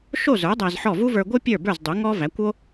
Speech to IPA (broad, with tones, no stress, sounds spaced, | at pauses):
ʃ o˥˩ z ə˞˩˥ dˤ æ˧ z ħ ɔ˥˩ v u˥ v ə˞˧ ɡʷ ɯ˥ pʲ ə˞˥˩ b ə˞˥˩ z dˤ u˩˥ ŋ ɔ˥ v æ˩˥ kʷ o˥